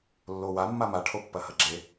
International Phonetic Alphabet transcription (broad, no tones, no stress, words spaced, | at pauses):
lːowa mːama ʈʰopːɐhɐɡ͡ǁe